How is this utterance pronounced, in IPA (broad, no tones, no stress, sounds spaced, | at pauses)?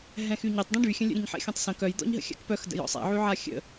ɦ ɛ̃ x y ɲ ɛ tˤ d ɛ̃ ɖ y xʲ ə̃ lʲ ə̰ ɾʲ ə̃ ɲ ħ ɛ̰ xʲ ɔ̃ tˤ s ə̃ k œ j d̪ ɔ̰ ɲ ɦ ə̰ xʲ a̰ k p œ x d ə̰ j ɔ̰ sˤ ɛ̰ ʕ y ʕ a xʲ ə̰